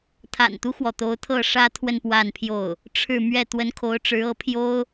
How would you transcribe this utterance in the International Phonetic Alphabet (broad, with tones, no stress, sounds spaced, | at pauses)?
t̪ʰ a̰˨˩ n t̪ u˦ x w ɔ˩ t̪ o˧˥ ʊ̯ t̪ʰ ɤ˥˩ ʂ ä˥ t̪ʰ w ə˥˧ n p w a˥˧ n pʰ j o˥˩ ʊ̯ | ʈ͡ʂʰ ɻ̩˥˧ m ɥ ɛ˥˩ t̪ w ə˧˥ n kʰ o˧˥ ʊ̯ ʈ͡ʂ ɻ̩˧˥ ɤ˧˥ pʰ j o˥ ʊ̯